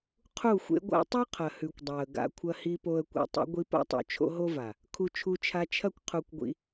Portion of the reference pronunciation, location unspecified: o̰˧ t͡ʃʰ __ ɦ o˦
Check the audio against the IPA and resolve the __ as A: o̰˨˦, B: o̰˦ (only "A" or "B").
B